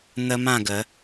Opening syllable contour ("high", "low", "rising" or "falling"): high